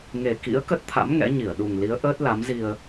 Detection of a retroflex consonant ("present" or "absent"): absent